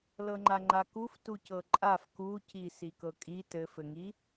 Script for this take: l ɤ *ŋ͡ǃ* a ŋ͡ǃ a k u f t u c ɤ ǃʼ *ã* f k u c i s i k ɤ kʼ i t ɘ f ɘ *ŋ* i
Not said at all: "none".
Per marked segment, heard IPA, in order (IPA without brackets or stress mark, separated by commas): ŋ͡ǃ, a, ŋ